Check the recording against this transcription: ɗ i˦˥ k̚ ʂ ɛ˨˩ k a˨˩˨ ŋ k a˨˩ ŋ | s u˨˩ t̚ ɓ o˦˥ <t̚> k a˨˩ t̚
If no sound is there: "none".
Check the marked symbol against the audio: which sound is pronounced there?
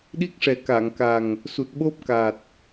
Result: p̚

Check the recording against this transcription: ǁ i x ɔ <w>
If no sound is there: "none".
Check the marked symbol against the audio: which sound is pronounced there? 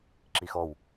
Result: w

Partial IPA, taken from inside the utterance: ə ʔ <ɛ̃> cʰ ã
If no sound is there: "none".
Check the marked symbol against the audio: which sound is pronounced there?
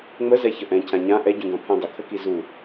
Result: ɛ̃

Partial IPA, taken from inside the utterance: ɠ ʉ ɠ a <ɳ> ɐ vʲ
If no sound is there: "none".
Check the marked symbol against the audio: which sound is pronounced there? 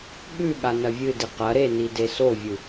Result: n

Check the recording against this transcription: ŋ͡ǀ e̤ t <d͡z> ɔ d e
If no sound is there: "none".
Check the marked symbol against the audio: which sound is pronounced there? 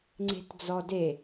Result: d͡z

